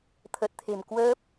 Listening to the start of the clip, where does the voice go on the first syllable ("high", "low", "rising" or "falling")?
low